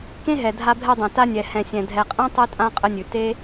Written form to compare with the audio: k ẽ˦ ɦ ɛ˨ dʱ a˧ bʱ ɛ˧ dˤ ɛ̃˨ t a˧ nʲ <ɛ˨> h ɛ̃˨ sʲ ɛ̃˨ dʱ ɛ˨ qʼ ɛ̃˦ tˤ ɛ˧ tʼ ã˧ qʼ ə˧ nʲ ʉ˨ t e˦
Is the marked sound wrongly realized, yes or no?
no